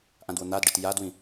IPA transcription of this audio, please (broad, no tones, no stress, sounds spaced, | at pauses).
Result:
ʔ ã d w ʊ n̪ a d ɖ ɨ t j a d w ĩ